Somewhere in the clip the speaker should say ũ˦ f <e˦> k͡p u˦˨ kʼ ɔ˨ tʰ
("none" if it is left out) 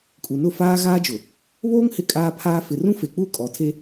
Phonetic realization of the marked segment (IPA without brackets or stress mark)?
e˨